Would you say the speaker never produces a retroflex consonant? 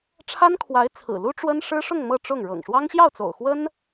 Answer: no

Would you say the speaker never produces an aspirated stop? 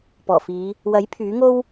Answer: no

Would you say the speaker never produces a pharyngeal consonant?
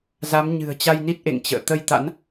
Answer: yes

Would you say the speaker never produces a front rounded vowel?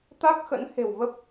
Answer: yes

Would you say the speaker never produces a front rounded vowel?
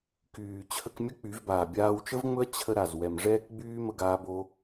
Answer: no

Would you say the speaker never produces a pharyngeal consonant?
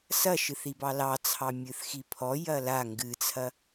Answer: yes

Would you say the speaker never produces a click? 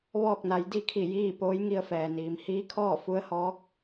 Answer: yes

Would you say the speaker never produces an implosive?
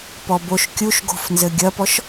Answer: yes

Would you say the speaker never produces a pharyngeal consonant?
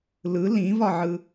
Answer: no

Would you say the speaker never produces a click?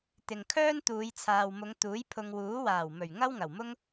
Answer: yes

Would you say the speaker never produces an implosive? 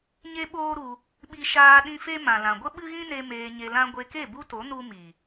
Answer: no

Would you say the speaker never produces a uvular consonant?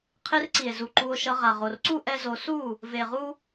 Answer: no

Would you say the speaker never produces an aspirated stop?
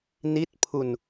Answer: no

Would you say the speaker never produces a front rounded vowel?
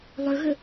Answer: no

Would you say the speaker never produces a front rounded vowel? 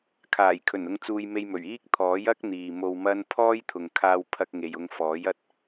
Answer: yes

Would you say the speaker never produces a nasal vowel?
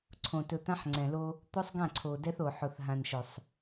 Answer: no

